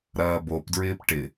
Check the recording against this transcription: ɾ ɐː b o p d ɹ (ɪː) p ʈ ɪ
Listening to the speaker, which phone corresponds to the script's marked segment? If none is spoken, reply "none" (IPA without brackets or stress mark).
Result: ɪː